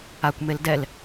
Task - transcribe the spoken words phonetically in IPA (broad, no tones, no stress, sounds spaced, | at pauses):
a kʷ m e l d ɛ l